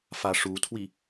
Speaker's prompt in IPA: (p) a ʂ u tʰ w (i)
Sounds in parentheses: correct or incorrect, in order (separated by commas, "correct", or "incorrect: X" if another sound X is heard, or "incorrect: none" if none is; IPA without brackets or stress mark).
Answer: incorrect: f, correct